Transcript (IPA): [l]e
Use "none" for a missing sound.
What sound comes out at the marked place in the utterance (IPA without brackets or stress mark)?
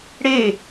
ɽ